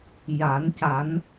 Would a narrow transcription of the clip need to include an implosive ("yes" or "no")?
no